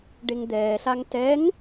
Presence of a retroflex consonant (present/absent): present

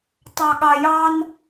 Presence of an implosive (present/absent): present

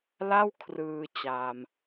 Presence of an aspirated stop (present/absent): present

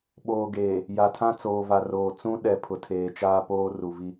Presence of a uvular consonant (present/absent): absent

